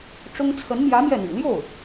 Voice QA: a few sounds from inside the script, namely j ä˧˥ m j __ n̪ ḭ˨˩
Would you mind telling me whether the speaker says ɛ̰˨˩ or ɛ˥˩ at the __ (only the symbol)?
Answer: ɛ˥˩